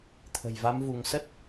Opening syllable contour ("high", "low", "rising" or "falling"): low